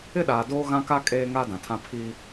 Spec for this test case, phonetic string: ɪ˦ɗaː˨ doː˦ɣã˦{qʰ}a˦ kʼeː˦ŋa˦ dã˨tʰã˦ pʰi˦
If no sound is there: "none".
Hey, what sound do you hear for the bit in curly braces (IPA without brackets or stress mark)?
k